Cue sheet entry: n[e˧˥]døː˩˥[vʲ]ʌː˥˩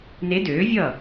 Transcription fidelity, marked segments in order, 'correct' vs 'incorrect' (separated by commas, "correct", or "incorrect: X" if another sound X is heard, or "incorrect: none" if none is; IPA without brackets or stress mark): correct, correct